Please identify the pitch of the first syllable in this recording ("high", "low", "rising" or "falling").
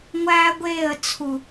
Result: high